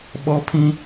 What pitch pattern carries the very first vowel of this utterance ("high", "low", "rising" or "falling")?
high